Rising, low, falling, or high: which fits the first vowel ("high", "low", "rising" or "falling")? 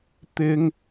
high